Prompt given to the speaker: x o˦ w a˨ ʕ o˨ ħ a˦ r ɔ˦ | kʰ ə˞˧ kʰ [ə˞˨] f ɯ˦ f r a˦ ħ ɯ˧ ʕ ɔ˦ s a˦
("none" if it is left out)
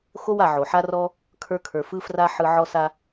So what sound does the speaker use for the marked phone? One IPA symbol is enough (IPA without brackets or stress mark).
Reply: ə˞˨